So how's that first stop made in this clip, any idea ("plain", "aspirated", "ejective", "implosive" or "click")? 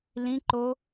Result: click